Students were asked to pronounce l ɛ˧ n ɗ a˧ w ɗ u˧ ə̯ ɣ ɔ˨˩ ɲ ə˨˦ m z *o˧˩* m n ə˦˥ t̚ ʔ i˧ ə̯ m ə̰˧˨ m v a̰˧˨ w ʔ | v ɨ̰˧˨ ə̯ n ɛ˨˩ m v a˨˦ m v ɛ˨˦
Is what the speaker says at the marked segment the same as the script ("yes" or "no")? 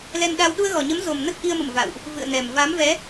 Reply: no